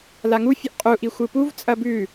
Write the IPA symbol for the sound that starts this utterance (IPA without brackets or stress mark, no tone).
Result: l